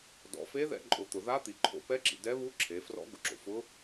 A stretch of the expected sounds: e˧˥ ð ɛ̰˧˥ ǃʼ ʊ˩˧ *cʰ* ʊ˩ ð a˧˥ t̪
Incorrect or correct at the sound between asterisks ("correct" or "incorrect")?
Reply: incorrect